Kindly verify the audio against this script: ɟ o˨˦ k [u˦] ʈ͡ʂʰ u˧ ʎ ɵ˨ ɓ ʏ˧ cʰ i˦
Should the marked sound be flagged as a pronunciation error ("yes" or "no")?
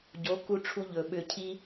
yes